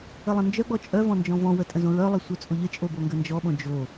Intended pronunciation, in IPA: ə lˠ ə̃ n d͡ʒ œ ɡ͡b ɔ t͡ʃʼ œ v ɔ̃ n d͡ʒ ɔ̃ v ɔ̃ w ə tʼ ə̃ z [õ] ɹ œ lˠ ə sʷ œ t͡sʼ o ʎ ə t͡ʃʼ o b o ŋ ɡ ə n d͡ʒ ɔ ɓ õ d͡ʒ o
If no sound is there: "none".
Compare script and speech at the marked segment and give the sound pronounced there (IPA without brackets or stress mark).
õ